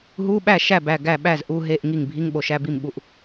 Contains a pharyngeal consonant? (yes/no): no